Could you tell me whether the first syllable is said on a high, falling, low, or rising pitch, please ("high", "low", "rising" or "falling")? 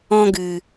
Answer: high